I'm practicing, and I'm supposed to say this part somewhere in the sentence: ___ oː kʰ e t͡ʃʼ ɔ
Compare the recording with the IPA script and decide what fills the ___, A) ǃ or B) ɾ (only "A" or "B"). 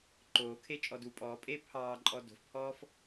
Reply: A